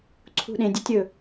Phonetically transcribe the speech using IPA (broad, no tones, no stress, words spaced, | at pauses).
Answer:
ǀʰṳɗẽdʲetʲ ɵ